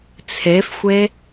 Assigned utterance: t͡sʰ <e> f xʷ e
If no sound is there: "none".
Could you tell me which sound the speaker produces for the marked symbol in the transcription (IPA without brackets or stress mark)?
e